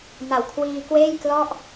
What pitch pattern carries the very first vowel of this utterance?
low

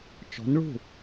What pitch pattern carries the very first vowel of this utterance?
rising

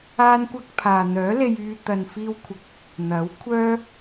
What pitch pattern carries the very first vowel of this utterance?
high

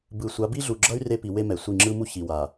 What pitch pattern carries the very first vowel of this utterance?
low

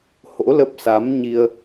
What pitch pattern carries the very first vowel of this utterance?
rising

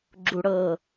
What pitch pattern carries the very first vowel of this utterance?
high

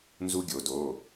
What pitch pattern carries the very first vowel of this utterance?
high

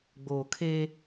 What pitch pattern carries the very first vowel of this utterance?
low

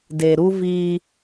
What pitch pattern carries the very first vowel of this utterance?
low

